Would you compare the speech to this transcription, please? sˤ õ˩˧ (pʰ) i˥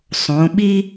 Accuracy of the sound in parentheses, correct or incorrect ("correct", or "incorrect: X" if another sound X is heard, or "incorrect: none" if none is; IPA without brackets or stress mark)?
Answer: incorrect: ɓ